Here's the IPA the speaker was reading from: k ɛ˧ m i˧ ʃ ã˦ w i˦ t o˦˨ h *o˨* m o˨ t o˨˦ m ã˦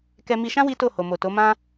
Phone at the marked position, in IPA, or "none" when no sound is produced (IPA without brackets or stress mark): o˨